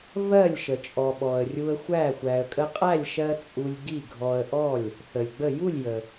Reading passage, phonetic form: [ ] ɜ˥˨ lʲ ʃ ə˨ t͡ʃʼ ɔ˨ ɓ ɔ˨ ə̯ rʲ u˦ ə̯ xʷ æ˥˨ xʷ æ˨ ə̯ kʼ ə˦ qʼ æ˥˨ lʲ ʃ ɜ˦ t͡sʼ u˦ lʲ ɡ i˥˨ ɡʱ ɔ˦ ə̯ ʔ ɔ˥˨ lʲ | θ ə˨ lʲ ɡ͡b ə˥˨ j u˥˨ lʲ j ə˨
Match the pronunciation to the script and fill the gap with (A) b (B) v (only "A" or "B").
B